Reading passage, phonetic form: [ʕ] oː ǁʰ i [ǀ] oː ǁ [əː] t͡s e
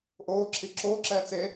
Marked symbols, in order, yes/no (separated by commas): no, no, no